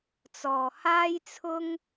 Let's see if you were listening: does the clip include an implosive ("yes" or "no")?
no